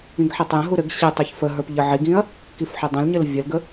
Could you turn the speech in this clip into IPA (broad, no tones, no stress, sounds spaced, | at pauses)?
ĩ ɡ ħ e tˤ j ə̃ ɦ u ɾ ɘ ɡ ɕ e tˤ e ç f ə ɦ ə˞ p ʎ ə ʕ i ɡ ĩ ɐ̯ | k i f ħ ɘ dˤ ə̃ l ɲ ɘ l vʲ ə l ɡ ə